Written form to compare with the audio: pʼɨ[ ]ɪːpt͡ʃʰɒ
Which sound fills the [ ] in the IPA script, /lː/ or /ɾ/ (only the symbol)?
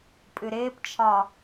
ɾ